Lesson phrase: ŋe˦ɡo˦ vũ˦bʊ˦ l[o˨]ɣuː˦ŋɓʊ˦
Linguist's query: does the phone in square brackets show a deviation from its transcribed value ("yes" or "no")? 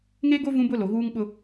no